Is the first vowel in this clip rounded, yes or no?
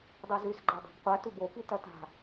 yes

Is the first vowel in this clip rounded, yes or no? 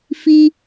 no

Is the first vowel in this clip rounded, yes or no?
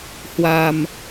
no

